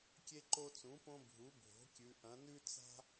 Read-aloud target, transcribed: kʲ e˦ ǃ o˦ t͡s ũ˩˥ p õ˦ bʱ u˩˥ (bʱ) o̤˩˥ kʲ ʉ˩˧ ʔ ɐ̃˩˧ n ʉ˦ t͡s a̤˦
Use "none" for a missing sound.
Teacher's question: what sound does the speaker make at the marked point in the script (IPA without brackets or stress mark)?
bʱ